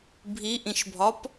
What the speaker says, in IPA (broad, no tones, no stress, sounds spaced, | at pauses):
bʱ i ʔ ĩ ʃ bʱ ɒ p